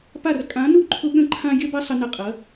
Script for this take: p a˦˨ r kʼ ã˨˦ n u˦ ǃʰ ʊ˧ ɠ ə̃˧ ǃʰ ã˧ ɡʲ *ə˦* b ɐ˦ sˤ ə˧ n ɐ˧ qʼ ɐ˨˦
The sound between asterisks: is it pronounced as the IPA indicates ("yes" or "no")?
no